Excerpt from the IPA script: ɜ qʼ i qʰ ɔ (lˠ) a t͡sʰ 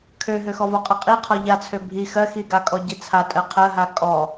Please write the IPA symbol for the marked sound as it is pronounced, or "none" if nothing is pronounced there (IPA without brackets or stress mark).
ʎ